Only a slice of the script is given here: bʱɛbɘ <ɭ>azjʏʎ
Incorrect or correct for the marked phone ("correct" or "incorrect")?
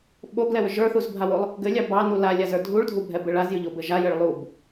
correct